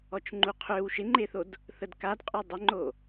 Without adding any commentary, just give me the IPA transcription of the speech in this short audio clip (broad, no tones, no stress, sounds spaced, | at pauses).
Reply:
ɔ t͡ʃ ŋ͡ǃ u qʰ ø w ʃ ɪ ŋ͡ǃ e θ o d | θ ə d k a d qʼ œ dˤ ɪ ŋ͡ǃ o